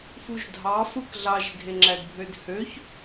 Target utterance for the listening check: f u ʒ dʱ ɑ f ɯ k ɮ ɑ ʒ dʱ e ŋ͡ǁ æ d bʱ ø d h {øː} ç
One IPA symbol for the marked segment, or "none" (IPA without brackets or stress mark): ø